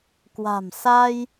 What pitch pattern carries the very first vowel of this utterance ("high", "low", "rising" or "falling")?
low